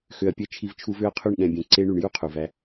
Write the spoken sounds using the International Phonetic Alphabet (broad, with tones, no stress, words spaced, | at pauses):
xø˨ɐ̯pʲɛ˧ t͡ʃʰi˧vt͡ʃʰu˧vø˦ɐ̯qʰy˦˨ɳ ɠɛ̃˨bʲɛ̃˨ ǀe˧ɳy˨ɳ ju˦qʰu˨væ˧